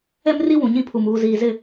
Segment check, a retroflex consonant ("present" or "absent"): absent